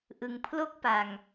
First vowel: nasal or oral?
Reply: oral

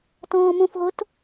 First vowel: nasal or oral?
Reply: nasal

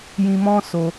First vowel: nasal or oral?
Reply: nasal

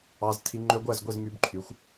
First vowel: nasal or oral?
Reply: oral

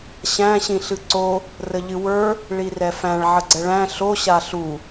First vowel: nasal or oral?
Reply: nasal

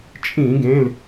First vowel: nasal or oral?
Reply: nasal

